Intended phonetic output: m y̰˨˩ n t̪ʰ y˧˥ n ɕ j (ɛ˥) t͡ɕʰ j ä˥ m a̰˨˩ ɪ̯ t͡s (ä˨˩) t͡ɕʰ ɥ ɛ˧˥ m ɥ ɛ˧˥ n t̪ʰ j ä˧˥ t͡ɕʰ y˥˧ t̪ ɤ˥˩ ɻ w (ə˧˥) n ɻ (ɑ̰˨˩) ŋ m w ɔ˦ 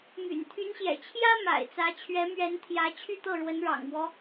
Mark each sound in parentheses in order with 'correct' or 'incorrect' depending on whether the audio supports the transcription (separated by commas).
incorrect, incorrect, correct, correct